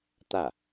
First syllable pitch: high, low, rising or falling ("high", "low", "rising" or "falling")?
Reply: falling